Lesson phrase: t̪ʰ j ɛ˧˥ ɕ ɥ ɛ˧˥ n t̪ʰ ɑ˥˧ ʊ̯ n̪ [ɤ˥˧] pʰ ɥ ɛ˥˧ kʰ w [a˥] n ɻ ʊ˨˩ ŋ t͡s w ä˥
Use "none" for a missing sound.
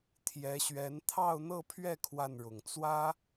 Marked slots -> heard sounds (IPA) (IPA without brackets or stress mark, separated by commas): ɤ˥˧, a˥˩